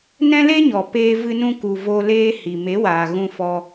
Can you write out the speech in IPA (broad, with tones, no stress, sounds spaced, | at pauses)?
n ɛ̃˦ l e˦ ɲ ɔ˨ p eː˧ v ɨ˧ n ũ˧ k u˨ v o˧ l eː˦ h i˨ m e˨˦ w aː˨ ɣ ũ˧ f ɔ˧